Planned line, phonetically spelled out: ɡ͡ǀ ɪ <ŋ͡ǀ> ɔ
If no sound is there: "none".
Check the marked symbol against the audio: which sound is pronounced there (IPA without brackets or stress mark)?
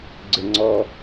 ŋ͡ǀ